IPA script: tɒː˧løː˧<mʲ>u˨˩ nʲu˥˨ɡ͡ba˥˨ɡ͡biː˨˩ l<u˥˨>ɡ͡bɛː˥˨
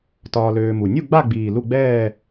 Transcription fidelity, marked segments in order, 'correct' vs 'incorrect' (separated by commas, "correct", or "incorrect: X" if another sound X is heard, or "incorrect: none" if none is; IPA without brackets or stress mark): incorrect: m, correct